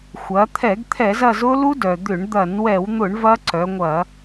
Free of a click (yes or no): no